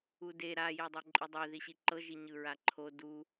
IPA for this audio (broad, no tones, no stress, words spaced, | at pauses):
ude ɾa jedˤoǃʼidˤe ðiɕiǃɤ ʒiɲɯɹaǃʰo du